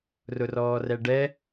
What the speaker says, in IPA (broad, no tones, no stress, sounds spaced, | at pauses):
r ʊ r ɔː r ɛ ɖ ɛ